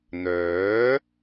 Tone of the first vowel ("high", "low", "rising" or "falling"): rising